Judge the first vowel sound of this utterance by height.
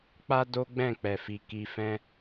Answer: low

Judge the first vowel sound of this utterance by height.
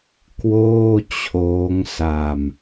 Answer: mid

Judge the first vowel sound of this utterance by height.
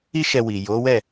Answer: high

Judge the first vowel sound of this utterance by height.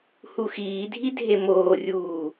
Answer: high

